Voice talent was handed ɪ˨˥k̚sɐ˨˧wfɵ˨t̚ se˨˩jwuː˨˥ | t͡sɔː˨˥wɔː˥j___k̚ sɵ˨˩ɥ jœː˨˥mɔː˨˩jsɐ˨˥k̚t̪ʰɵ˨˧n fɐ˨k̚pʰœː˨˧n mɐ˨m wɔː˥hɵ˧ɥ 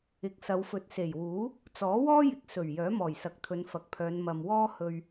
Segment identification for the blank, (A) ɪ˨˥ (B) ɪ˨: B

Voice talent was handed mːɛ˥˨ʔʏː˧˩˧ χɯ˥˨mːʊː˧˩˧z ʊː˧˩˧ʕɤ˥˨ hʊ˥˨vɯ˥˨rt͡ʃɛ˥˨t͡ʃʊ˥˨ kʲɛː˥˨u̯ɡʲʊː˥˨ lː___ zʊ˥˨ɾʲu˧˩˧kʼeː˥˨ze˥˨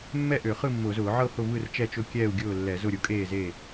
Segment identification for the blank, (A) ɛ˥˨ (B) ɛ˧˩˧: B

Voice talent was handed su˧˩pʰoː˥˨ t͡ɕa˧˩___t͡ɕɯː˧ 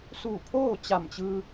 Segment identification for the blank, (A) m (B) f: A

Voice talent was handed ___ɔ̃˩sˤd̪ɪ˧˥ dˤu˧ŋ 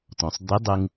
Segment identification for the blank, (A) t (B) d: A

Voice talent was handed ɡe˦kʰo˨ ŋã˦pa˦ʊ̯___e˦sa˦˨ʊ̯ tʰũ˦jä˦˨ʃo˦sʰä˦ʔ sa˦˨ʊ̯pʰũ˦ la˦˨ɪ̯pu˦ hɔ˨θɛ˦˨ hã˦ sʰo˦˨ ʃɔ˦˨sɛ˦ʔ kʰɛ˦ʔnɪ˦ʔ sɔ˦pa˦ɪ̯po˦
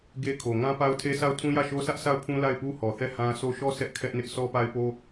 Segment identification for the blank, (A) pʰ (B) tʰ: B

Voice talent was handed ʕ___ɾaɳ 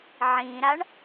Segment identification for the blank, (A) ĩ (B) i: A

